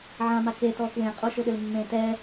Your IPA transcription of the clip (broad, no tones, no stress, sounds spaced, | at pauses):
ʕ ã m a k e t ɔ k w ẽ qʼ o ʃ ʊ ɗ ʏ l mː ẽ t ɛ